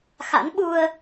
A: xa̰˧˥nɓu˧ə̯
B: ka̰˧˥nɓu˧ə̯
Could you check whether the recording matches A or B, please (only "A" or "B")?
A